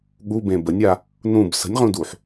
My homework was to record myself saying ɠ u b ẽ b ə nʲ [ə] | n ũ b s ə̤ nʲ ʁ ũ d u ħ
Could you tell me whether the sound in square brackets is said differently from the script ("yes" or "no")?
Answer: yes